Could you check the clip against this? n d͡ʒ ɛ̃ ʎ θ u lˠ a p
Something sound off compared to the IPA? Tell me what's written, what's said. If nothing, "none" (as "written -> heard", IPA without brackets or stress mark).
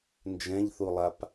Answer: none